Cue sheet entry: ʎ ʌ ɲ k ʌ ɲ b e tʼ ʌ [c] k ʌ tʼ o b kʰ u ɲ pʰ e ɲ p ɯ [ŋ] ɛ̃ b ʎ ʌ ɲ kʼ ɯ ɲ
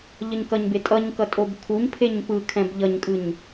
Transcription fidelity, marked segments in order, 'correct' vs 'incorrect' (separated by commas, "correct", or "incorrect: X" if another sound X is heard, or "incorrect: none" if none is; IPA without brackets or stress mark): incorrect: ɲ, incorrect: kʰ